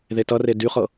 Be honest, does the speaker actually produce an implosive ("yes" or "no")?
no